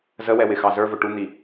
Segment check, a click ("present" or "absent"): absent